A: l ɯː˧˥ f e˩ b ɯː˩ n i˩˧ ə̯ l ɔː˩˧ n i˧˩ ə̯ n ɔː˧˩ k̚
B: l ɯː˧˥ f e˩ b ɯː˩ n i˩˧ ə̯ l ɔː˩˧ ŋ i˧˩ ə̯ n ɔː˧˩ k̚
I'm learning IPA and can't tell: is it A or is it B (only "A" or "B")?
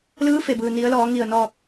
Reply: B